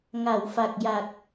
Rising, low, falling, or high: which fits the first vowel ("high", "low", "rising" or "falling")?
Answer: low